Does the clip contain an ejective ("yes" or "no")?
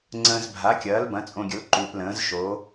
yes